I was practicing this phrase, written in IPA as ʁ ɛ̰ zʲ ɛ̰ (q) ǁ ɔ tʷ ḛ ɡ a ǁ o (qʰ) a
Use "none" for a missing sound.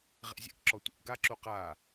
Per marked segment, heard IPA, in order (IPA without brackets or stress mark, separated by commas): k, q